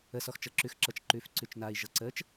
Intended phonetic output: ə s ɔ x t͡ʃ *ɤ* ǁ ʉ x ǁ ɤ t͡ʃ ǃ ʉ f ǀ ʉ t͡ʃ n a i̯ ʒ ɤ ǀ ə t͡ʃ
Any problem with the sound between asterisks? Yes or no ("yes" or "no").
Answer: no